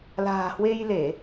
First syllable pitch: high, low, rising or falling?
low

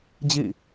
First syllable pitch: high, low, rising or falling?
falling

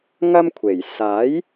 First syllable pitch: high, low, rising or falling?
high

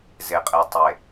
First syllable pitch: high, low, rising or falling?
low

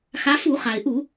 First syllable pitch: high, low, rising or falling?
rising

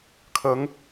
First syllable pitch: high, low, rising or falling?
rising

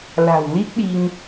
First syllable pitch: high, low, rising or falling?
low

